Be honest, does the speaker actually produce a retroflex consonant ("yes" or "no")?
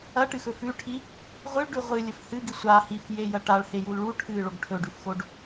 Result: yes